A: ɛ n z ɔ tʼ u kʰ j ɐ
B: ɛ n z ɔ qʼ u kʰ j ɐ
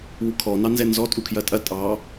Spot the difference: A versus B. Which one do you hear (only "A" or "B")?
A